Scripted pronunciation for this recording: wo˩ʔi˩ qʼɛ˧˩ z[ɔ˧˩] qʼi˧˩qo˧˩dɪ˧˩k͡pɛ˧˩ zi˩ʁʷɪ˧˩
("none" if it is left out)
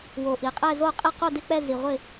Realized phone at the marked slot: o˧˩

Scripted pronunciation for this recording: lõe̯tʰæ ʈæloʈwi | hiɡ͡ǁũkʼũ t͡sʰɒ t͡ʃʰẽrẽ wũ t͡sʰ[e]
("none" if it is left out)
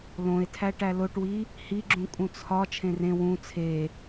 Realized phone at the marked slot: e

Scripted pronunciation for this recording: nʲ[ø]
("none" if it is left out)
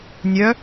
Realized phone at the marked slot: œ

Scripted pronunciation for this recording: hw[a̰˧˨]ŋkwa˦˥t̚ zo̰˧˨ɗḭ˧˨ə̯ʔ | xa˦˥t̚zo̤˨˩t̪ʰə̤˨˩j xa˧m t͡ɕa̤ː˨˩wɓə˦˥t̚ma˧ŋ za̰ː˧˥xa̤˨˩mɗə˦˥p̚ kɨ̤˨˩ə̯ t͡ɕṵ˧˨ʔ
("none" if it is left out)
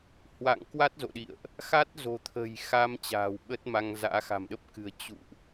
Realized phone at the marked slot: a̰˧˨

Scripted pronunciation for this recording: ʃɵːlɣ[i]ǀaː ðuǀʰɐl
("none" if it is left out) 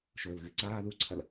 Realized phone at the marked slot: ɨ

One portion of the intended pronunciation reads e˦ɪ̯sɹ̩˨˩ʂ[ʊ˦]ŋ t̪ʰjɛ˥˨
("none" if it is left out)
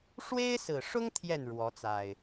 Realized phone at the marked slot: ʊ˦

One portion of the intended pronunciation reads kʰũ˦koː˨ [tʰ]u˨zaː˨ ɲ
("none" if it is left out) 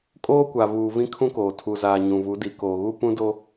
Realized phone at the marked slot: tʰ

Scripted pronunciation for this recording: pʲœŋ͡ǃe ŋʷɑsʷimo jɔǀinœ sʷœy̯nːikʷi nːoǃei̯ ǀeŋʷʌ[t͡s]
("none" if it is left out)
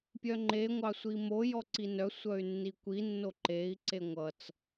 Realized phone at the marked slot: t͡s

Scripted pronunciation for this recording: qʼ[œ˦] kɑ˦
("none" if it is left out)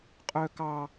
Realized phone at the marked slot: œ˦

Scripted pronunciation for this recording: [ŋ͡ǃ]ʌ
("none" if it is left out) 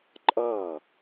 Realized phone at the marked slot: ǃʼ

